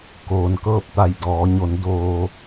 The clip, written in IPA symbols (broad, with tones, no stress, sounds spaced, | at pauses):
k oː˩ n k ɤː˥˨ p̚ t̪ a˧˩ j d ɔː˩˧ ɲ o˩˧ n d oː˩